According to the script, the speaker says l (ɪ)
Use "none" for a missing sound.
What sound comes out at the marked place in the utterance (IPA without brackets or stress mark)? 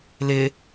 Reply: ɪ